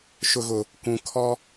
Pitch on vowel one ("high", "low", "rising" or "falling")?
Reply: low